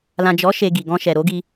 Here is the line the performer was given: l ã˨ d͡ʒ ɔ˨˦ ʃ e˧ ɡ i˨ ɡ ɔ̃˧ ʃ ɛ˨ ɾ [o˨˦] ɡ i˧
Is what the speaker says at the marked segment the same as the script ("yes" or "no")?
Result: yes